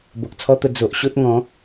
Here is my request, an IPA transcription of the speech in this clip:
b o˨ k̚ t͡sʰ ɔ˦ t̪ ə˧ d͡z o˨ ʔ ɕ o˦ t̚ ŋ ɔ̃˨˦

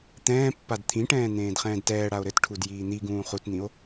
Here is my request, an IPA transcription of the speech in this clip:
t̪ ɛ̃ː pː a d t̪ʰ ĩ ʈ ɛ̃ː n̪ ẽː d χ ɛ̃ː d t ɛː ɽ a o̯ ɾ ɘ t ʈʰ u d j iː n̪ i ɡ ũː χ u t n̪ ĩ o̯

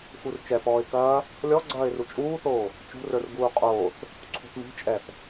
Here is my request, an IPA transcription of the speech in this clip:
x u r t͡ʃ ɛ p ɔː ɪ̯ k ɐː | lʲ ɔ ɡ͡ǀ ɐː ɪ̯ r u t͡ʃʼ uː θ oː | t͡ʃ ṳ r ə˞ r ɡ uː qʼ oː θ | ǀʰ ṳ θ m i̤ t͡ʃʼ ɛ θ

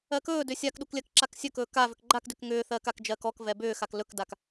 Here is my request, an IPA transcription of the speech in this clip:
ɜ k ɵː d ʏ sʲ a k ɗ u k lʲ ɜ k ǁ a k sʲ ɵ k ɵː k a v ʏ k ɡ͡ǃ a k d ʏ k ŋ ʏː θ ɜː k a k d͡ʒ ɜː k ɔ k v ɛ b ʏː x a k l ɵ k d a k

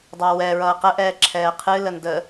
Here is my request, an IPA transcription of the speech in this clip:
dˤ a w ɛ ɹ ʌː q ə ʔ ɛː ǁʰ ɛː qʰ ɨ l ə n d ə

